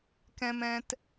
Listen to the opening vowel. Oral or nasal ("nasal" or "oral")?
nasal